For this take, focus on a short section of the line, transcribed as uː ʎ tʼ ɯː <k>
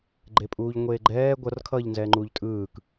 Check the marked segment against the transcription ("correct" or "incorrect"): correct